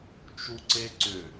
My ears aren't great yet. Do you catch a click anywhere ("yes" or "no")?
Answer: yes